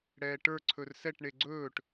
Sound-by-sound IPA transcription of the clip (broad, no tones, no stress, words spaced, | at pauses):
ɽɛːʈə˞ ǀʰɵrsɛʈ ɳeɡ͡ǀɵːʈ